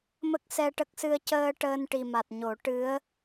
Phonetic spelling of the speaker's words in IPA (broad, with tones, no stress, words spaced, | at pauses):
mə˦˥k̚sɛ˧ʈə˦˥k̚sɨ˧ə̯ cəː˧ ʈəː˧nʈi˨˩ma˨˩t̚ɲo˨˩˦ ʈɨ˧˥ə̯